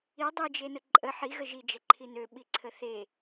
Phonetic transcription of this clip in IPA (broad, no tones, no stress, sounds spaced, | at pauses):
i dˤ i d͡ʒ e n ə ǃʼ ə ħ i ɣ ə ʒ i d͡ʒ ɛ ǃʰ i n ø ɓ i ǀʰ ə θ e